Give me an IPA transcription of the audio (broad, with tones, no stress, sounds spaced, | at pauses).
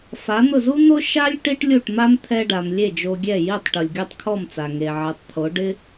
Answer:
f a˩˥ n̪ ʊ˥˩ z u˥ n̪ o˥ ʃ a˥ lʲ ʈ i˥ ʈ lʲ u˥˩ ʈ m a˥ m t̪ʰ ɛ˧ ɖ a˩ m lʲ e˥˩ d͡ʒ o˧ ɡʲ ɛ˥˩ j i˥˩ tˤ ʈ u˩ lʲ ɡʲ o˥˩ tˤ kʰ ɔ˥˩ m t͡s a˩ ŋ e˩ ʕ ɛ˩˥ tˤ t̪ʰ o˩˥ ɖ ɪ˥